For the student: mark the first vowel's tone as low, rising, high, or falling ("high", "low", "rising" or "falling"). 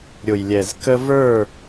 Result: low